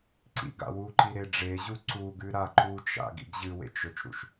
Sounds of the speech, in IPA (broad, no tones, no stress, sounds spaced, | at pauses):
ǀ ḭ ɡ a̰ w u ǃ i ɾ e ɖ͡ʐ e ʑ u ǀ u ɡ ʉ ɾ a ǃ u t͡ʃ a̰ ɡ ḭ ɡ ʑ ɨ w ḛ t͡ʃ ɵ t͡ʃ ɾ ṵ ʃ